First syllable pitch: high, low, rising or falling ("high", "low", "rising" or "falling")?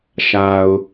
low